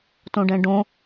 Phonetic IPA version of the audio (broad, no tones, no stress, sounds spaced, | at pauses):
t õ ɖ ɛ̃ ɖ õ